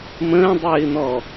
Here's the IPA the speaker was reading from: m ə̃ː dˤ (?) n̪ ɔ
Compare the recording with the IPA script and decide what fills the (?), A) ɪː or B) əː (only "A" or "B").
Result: A